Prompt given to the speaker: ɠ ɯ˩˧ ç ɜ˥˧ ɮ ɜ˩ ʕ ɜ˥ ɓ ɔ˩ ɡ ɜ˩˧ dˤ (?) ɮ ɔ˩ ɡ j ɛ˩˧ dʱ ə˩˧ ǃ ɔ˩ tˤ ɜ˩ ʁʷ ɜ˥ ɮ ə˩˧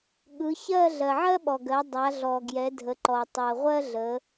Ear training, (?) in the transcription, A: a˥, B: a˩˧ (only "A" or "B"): B